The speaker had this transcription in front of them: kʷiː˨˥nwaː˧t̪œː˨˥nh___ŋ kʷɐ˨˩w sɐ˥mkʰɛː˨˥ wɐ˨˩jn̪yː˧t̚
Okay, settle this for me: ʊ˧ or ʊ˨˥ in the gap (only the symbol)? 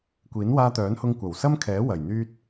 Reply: ʊ˧